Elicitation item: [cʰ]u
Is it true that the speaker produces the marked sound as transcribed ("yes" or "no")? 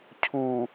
yes